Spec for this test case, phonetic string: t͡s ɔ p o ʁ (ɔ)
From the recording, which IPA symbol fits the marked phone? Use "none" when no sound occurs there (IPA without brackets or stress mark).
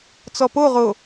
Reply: o